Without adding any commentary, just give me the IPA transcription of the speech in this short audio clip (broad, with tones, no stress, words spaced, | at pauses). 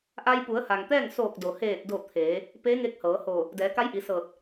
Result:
ʔa˧jpu˩˧ə̯ha˩ŋ t̪ɛː˥˨ŋ soː˧˩k̚do˩heː˧˩t̚do˧˩ t̪ʰeː˩˧ | pe˧˥ ŋe˧˥k̚hɤː˩˧hoː˧˩ | dɛː˩˧ka˧˥jʔi˩˧ sɤː˧˩t̚